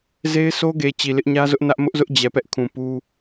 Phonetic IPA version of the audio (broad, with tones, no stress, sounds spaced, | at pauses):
z e˦ ɪ̯ sʰ o˦ ɡ e˨ t͡ɕ i˨ l ɪ˦ ʔ ɲ ä˦ z ʊ˦ ʔ n ä˦ ʔ m ʊ˦ ʔ z ʊ˦ ʔ d͡ʑ ɛ˨ p ɛ˦ ʔ kʰ ũ˨ p u˦